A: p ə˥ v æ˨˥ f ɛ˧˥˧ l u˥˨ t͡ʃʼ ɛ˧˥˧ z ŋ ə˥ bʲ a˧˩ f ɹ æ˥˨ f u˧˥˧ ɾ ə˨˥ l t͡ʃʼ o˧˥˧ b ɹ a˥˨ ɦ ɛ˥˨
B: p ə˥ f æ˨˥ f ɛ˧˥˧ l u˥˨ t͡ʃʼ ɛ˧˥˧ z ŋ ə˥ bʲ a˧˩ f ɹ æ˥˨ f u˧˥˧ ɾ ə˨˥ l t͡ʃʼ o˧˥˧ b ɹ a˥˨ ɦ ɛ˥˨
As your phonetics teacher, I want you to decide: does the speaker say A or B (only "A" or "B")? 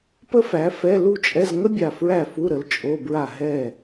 B